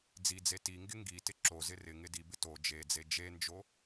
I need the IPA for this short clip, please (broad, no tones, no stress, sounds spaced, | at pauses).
d͡z i d͡z e t i ŋ ɡ ɪ ŋ ɡ i t ɪ ǁ o z ɪ r ɪ ŋ ɪ d i b ɪ t o d͡ʒ e d͡z e d͡ʒ e n d͡ʒ o